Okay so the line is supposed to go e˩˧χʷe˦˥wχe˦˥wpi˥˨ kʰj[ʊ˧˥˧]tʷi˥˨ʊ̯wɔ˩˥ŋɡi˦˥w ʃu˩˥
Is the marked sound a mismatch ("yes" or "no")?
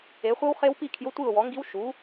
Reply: no